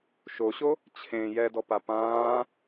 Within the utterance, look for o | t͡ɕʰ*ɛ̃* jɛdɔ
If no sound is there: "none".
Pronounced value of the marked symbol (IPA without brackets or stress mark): ẽ